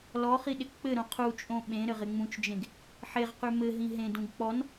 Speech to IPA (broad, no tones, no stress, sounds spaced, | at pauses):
l ɔ χ i ɗ ɪ k k͡p ɘ ɾ õ qʰ u t͡ʃʼ õ ɓ ẽ ɾ ɘ ʁ ɪ ŋ͡m ũ t͡ʃ d͡ʒ ẽ ɡ | ħ e ʁ q ʉ m ɘ ɦ ĩ ɦ ẽ d ũ ɡ k͡p ɔ n